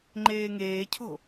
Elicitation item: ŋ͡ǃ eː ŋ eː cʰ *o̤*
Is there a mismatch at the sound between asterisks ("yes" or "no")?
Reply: no